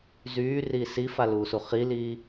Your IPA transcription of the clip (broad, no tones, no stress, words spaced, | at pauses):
zyːriː sifaluːsu χiliː